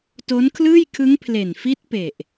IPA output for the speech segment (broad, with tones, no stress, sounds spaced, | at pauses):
t o˦˥ n kʰ l ɯː˥˩ j kʰ ɯ˦˥ ŋ pʰ l e˨˩ n f i˦˥ t̚ p e˨˩ ʔ